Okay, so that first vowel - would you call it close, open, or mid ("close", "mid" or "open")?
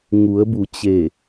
close